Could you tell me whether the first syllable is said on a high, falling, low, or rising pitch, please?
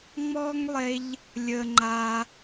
high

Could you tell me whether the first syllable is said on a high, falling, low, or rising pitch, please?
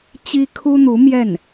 high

